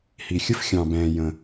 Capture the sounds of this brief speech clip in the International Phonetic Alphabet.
h i˩ xʲ ə˥ f xʲ ɑ̃˩ b ɛ̃ː˩ j ə̃˩

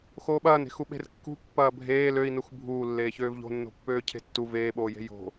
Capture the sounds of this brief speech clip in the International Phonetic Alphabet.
x oː ɓ ɐː n e̤ x u ɓ e̤ r kː ṳ pː ɐː bʱ eː l ø i̯ n u x bʱ uː lː eː ç øː v ʎ o̤ nː o̤ pː øː cʰ e̤ tː u v eː ɓ oː j e̤ j o̤

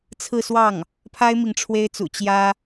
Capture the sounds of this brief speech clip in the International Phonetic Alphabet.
t͡sʰ ɹ̩˥˧ s w ɑ˥˩ ŋ | pʰ a˥ ɪ̯ m i˨ ŋ ʈ͡ʂʰ w e˥ ɪ̯ t͡s ṵ˨˩ t͡ɕ j ä˥

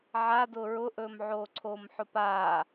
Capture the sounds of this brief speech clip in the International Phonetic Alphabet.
ʕ a d ʊː ɹ ʊ ʔ ɵː m ʕ oː ǀʰ oː m ħ ʊ p aː

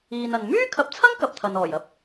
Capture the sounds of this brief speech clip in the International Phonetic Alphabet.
iː˨ n ɐ˨ n m yː˥ kʰ ɐ˨˥ p̚ t͡sʰ ɐ˥ ŋ k ɐ˨ p̚ t̪ʰ ɐ˨ n ɔː˨˩ j ɐ˧ p̚

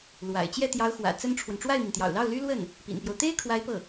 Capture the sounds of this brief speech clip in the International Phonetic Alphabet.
l w a̰˨˩ ɪ̯ t͡ɕ j ɛ˥˩ t̪ j ɑ˧˥ ʊ̯ x w ä̰˨˩ t͡s ə˥ n ʈ͡ʂʰ w ə˨ n ʈ͡ʂ w a˥˩ ɪ̯ m i˩ n t̪ j ɑ̰˨˩ ʊ̯ l ɑ˥˩ ʊ̯ l y˥ l w ə˥˩ n | p ḭ˨˩ n p j o˦ ʊ̯ t̪ e˥ ɪ̯ kʰ w a˧˥ ɪ̯ p ɤ˥˩

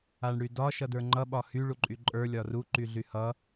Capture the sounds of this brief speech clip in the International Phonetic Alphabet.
a ɳ ɽ y d ɒ ʃ ʌ d ə˞ ŋ͡ǃ ʌ ɓ ɒ h y ɭ u ǃʼ y ǃʼ ə˞ lʲ ɒ r u ǃ y ɮ y h ʌ

